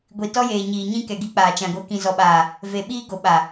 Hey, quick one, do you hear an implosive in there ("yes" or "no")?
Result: yes